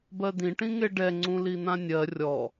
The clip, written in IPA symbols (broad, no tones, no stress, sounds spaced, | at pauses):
b ɜ d̪ ĩ ʈ ĩ ŋ e ɖ ɛ ŋ͡ǀ ũ l i n̪ ã nʲ ɜ rʲ ɔ